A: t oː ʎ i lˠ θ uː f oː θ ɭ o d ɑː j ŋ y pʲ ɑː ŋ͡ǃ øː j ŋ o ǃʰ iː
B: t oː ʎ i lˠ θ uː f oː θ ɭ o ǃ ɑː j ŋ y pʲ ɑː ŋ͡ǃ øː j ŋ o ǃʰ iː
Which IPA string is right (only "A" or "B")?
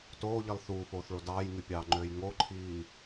A